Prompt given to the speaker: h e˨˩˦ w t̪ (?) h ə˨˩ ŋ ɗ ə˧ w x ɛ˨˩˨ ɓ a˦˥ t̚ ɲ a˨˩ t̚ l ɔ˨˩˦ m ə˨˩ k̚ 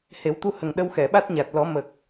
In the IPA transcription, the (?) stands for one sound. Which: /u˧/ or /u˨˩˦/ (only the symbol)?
u˧